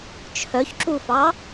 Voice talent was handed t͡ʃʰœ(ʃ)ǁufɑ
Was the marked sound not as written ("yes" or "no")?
yes